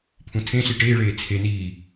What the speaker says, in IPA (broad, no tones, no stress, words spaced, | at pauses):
pʰũtʰẽɬi ʈeːɭeː t͡sʰe niː